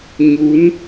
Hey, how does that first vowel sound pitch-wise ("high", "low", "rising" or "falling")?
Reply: rising